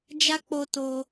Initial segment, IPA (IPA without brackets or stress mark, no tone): d͡ʒ